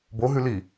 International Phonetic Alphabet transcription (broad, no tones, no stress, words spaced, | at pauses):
boɦʉli